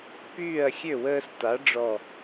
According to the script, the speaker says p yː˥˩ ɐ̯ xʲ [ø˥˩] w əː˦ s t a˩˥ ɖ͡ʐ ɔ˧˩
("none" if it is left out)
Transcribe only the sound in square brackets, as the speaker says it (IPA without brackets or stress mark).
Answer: ø˥˩